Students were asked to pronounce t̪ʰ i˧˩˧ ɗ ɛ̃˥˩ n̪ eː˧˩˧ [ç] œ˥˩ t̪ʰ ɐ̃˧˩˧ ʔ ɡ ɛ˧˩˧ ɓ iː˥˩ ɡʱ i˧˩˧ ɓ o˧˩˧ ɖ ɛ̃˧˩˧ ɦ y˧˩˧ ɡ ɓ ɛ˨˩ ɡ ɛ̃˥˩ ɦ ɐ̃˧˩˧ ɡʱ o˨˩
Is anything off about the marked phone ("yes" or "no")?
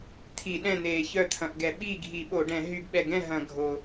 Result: no